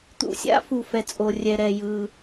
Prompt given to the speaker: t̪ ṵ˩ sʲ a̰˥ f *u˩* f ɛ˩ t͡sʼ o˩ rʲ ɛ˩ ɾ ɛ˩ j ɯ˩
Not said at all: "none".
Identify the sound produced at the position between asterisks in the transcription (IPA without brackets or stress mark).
u˩